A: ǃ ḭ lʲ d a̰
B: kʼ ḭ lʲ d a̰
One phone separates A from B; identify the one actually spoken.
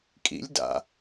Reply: B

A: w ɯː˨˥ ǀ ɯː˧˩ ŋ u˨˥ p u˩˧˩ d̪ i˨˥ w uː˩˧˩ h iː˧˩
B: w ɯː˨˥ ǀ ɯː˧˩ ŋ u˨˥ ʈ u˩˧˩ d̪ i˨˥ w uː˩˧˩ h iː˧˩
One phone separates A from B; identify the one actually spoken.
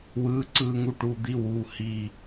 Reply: B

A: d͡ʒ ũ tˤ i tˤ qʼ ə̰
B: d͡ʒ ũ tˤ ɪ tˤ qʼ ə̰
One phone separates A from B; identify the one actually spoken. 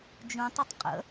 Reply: B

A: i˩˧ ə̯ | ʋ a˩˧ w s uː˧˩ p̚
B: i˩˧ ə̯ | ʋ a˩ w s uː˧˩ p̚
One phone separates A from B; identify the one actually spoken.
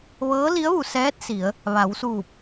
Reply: A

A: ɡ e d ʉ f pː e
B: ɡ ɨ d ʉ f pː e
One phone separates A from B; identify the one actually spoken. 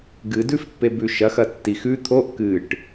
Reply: B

